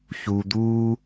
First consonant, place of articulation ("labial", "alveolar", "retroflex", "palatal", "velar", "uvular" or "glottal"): palatal